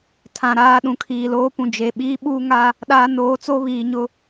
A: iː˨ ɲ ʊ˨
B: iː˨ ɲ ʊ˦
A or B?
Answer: B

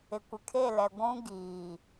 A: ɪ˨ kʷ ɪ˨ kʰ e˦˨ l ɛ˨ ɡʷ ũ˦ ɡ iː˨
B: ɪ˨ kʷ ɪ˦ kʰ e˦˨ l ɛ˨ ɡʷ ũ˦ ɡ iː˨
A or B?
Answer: A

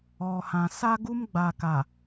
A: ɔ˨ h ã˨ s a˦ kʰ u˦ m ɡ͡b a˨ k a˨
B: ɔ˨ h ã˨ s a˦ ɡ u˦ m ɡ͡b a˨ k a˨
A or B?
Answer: B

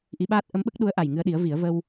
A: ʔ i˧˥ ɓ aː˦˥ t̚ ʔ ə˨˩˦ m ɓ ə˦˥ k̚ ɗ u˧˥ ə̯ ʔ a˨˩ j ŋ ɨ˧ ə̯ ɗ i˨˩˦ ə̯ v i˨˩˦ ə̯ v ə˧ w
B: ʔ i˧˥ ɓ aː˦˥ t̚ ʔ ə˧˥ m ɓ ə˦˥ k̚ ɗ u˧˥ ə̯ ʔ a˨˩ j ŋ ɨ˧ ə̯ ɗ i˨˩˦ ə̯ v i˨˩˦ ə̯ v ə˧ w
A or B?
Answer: B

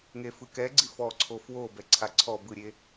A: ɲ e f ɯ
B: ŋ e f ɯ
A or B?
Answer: B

